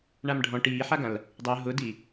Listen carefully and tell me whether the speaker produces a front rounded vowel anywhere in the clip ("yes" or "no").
no